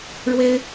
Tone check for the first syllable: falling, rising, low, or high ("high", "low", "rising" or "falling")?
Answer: high